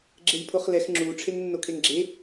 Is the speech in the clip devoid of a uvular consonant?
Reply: no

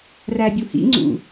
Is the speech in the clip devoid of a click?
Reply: no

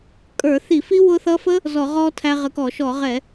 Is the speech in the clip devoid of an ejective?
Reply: no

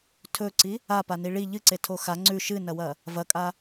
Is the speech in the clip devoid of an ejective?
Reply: no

